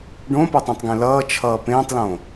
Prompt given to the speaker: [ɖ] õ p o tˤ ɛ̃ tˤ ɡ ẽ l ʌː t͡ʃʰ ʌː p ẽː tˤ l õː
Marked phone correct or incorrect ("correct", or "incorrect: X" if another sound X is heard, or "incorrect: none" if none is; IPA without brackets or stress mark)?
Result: correct